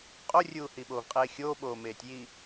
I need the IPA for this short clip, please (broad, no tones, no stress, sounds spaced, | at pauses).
qʼ o rʲ uː h i ɓ oː v qʼ eː xʲ oː ɓ oː m eː tʲ j i